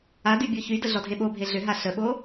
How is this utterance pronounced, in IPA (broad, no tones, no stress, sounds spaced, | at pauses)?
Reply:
a d y bʲ o ç y d ə ɮ ɔ dʱ e ɓ o bʱ e ɮ ʏ ɦ a ɬ ə ɓ o